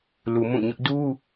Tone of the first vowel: low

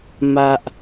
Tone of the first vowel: high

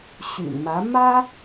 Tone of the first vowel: low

